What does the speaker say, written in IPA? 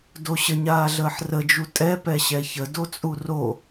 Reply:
d o ɕ ə ɲ aː ɮ əː ħ r ə d͡ʒ u tʼ ɛ p ɛ ɕ ɛ ç ə d o t͡sʼ u r o

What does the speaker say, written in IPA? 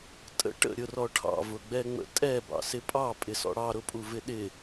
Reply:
tʼ ə̰ ʈ ə̰ ɾʲ ʊ r ɔ ʈʰ ɑ̰ v ʊ ɡ͡b ɛ ŋ͡m ə̰ tʼ ɛ b ɑ̰ s ɪ pʼ ɑ pʼ ɪ s ɔ̰ ɽ ɑ ɾ ʊ pʼ u v ɪ ɗ ɪ

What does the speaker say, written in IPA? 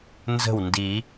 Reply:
n z ə̤˥˩ w n d i˨˩˦

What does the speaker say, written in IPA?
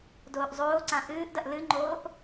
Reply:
d oː ʔ zˤ oː ǀ ã ʔ ɨː ʔ d ɐ ʔ l ɨ ŋ͡ǃ oː ʔ

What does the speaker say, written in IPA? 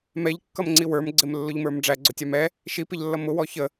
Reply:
m ɛ ʎ kː ʌ m ŋ͡ǀ i w ə˞ m ɡ͡ǀ ɪ m lː ʊ ʎ m ə˞ m ɖ͡ʐ æ ɡ͡ǀ ʊ tʲ ɑ m ɛ | ʃ i p ɪ ʎ lː ʌ m ʊ w ɔ ç ə

